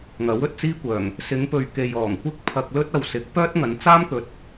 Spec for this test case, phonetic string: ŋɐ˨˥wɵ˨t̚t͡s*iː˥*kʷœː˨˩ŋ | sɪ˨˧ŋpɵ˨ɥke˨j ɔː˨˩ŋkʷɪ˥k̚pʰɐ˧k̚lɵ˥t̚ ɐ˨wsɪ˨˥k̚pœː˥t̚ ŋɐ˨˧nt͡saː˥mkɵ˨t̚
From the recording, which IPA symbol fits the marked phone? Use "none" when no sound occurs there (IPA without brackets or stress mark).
iː˥